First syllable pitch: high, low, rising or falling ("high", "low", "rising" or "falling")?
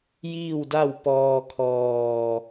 falling